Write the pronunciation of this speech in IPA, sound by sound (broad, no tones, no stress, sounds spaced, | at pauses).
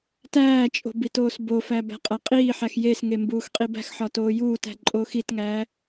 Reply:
t æː t͡ʃʼ o̤ b i t oː s b o f æ b æ̤ qʼ æ qʼ iː ħ æ x j e s ŋ e m b uː x qʼ i b æ̤ x ħ ɒ t oː j uː t æ̤ ǃʼ oː x i t ŋ æː